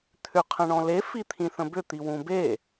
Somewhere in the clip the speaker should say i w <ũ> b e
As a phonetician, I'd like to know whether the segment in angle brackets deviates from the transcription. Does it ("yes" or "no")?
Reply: no